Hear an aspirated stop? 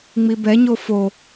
no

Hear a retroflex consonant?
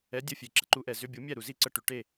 yes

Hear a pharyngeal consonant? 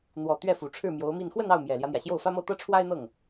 no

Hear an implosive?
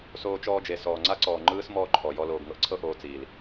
no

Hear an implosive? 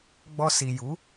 no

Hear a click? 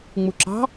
yes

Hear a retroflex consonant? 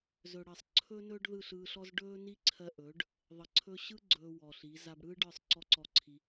yes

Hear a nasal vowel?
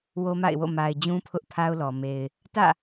yes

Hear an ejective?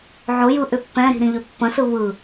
no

